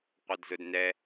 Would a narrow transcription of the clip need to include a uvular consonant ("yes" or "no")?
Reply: yes